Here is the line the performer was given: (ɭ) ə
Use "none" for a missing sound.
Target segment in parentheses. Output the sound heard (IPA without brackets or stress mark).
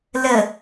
l